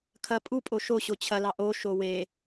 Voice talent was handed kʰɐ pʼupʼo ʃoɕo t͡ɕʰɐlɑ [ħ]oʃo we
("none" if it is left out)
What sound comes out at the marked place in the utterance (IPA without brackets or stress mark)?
ʔ